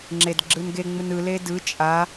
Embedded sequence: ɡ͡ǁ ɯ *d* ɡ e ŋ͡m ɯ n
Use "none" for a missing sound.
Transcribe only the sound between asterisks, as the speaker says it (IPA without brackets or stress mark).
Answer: n